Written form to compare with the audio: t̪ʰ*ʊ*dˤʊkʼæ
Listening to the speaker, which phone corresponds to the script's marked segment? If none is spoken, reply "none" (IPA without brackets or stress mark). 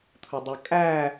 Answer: ʊ